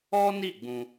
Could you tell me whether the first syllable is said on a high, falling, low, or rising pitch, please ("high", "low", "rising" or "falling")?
high